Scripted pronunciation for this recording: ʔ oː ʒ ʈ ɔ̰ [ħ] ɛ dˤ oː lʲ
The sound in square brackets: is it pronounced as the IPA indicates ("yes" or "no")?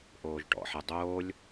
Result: yes